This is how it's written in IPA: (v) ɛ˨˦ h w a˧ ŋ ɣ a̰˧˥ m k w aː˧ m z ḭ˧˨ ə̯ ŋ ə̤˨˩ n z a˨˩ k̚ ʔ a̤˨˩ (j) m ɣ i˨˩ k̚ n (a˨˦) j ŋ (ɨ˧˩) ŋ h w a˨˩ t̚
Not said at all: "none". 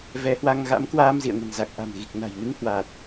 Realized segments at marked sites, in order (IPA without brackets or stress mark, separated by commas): v, none, a̤˨˩, ɨ˨˦